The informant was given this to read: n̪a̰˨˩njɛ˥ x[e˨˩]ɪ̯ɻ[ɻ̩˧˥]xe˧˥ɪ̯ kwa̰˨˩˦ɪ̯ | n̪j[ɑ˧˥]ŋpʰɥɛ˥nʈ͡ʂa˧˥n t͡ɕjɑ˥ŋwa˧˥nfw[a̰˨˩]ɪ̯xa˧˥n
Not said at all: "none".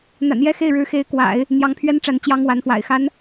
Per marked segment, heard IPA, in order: e˥˩, ɻ̩˧˥, ɑ˧˥, a̰˨˩

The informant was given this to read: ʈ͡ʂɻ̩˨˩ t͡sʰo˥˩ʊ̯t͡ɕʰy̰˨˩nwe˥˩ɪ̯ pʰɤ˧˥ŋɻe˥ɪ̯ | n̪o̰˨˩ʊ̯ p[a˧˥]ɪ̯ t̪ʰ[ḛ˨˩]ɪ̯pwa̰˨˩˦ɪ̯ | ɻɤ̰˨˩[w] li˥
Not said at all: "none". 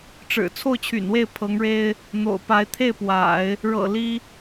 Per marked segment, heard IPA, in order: a˧˥, e˥˩, none

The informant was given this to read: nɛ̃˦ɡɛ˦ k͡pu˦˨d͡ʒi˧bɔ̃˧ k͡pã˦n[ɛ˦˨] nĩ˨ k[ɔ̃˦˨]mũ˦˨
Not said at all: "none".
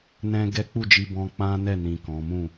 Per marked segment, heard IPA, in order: ɛ˦˨, ɔ̃˨˦

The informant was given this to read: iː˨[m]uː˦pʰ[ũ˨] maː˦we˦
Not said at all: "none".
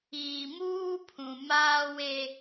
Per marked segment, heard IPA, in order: m, ũ˨

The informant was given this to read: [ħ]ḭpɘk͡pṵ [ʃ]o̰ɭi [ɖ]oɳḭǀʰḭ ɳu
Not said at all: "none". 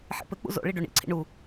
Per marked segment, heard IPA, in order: ħ, z, ɖ

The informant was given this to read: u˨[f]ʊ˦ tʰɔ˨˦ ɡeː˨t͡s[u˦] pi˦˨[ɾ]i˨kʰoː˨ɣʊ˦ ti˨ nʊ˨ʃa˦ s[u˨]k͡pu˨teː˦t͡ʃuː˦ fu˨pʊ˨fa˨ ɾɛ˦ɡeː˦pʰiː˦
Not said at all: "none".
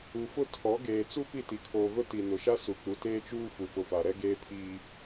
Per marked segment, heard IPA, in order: f, u˦, t, u˨

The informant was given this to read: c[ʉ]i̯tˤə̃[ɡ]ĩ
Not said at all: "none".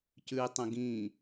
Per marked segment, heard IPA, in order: ʉ, ɡ

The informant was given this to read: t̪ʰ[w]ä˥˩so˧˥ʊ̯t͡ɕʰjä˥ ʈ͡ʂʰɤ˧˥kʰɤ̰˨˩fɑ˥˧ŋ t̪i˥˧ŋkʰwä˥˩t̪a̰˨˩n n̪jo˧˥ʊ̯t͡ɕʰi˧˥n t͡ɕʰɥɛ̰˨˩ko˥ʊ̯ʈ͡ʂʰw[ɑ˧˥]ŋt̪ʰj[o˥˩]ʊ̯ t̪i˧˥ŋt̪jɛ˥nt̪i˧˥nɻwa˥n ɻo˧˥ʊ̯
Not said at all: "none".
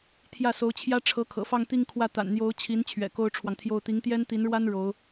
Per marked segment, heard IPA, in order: j, ɑ˨, o˥˩

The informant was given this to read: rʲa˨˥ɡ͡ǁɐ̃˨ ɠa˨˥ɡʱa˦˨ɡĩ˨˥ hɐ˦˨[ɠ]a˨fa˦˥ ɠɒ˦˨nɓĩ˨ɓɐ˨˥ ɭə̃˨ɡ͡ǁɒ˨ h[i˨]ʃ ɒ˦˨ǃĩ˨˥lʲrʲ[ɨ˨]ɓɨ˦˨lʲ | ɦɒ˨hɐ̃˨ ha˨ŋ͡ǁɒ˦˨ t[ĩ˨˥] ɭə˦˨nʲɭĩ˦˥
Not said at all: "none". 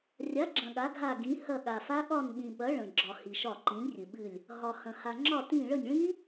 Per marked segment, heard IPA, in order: ɠ, i˨, ɨ˨, ĩ˦˨

